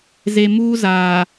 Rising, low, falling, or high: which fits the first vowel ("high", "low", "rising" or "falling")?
low